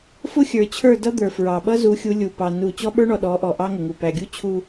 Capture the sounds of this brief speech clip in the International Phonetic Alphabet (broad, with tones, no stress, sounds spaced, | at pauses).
f ʊ˦ xʲ ə˞˨ t͡ɕʰ ə˞˦˨ d ʌ˦ d̪ ə˞˨ f ɹ ɑ˨ ɓ ʌ˦ z u˨˦ xʲ u˨˦ lʲ u˨ p ɑ˨ n u˦˨ t͡ɕ ɔ˦ ɓ ə˞˦ ɳ ɔ˨ ɗ ɔ˨˦ ʔ ɔ˨ ʔ ɑ˦ ŋ ʊ˨ ŋ u˨ p æ˨ ɡʲ u˦ t͡ɕʰ u˦